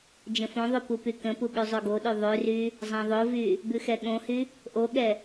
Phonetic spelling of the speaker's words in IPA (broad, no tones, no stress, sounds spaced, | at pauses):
d͡ʒ ə̃ f õ ðˤ ʉ p u p y k ə̃ p u ɠ y zˤ ʉ ɡ o ɗ y ðˤ ʉ r y | zˤ ɑ̃ ðˤ o v y | b ʉ x ɛ ɠ õ h y | ʔ o ɠ ɛ